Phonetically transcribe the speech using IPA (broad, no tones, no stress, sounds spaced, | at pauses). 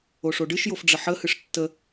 o ʂ o ɖ ɨ ʃ j o f ɖ͡ʐ ə ħ ə h ɨ ʂ tː ə